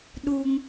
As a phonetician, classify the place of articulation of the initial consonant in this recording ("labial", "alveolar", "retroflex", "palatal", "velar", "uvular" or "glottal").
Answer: alveolar